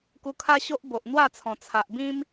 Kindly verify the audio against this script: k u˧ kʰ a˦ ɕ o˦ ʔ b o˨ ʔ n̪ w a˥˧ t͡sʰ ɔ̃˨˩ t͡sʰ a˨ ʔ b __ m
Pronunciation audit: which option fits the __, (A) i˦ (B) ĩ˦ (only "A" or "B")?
B